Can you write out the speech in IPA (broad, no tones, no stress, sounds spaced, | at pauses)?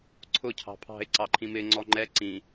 ǀʰ ʊ cʰ ɑ̤ pʰ ɑ̤ ɪ̯ ǀ ɑ ǃʰ ĩ m ɪ ŋ͡ǀ ɔ ŋ͡ǃ ɛ ǀ ĩ